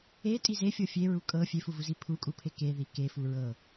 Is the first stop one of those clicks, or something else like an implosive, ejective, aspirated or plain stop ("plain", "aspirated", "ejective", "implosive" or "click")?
ejective